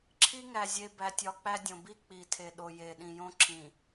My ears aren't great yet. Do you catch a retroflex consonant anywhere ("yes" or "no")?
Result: no